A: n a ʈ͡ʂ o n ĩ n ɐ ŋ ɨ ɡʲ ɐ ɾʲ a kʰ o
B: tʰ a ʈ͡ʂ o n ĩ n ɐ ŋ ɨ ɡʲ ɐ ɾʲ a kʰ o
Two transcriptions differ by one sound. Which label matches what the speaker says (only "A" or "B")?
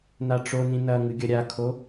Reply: A